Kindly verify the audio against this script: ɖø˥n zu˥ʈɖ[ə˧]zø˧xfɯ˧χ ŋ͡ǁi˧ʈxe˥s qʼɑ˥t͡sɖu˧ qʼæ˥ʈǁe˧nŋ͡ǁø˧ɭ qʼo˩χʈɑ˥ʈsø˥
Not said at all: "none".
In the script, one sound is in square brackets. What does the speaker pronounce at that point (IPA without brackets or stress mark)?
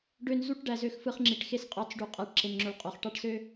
æ˧